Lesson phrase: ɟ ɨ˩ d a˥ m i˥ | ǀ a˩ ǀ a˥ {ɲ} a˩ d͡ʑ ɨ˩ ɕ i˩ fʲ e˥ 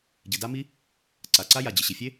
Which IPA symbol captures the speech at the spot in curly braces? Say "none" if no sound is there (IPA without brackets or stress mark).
j